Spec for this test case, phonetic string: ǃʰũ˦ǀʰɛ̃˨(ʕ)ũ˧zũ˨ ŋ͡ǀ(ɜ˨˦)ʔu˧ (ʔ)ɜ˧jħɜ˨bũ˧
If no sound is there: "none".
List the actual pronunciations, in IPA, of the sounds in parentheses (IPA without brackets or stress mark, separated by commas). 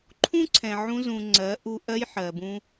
ʕ, ɜ˨˦, ʔ